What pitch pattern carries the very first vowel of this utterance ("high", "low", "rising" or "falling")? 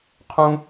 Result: high